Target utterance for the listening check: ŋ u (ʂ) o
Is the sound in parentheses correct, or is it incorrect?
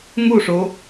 correct